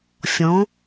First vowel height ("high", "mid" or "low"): mid